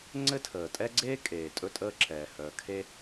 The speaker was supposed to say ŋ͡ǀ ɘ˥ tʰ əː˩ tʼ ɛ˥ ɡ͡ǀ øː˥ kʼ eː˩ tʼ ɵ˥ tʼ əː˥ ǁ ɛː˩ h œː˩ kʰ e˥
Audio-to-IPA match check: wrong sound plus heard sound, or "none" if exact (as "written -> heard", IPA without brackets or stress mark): øː˥ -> eː˥